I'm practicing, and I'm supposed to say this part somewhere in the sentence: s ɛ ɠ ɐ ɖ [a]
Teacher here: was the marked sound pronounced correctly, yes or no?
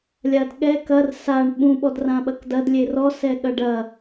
no